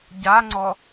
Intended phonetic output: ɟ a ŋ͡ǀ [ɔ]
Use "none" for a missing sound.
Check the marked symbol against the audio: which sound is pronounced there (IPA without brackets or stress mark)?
ɔ